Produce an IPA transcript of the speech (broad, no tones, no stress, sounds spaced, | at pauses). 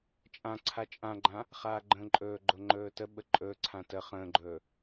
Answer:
t͡ʃʼ ã ǀʰ a t͡ʃʼ ã ɡ͡ǃ ã | χ aː ɡ͡ǃ ə̃ː ǃʼ ɵː ɡ͡ǃ o ŋ͡ǃ ɵː t ə ɓ ə ǃʼ ɵː ǀʰ ã t ə χ ə̃ː ɡ͡ǃ ɵː